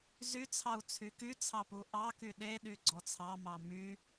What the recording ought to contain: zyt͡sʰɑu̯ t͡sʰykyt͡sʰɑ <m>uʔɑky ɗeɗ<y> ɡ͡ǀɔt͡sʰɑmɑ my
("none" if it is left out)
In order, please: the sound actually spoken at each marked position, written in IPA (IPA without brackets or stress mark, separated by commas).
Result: p, y